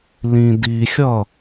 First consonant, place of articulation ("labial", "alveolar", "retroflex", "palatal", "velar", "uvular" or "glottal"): alveolar